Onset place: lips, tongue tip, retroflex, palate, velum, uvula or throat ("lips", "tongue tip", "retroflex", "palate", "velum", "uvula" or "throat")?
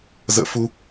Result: tongue tip